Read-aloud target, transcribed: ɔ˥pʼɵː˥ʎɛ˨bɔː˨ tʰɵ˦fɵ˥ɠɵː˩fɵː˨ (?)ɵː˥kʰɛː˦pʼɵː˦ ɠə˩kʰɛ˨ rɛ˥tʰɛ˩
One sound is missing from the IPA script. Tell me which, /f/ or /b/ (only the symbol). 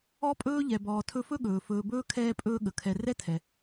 b